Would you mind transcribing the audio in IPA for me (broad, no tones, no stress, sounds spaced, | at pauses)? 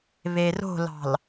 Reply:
β e r o̤ l ɑ̤ l